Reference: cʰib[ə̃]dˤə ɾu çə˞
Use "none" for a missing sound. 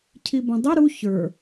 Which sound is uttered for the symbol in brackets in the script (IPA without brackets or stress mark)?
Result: ə̃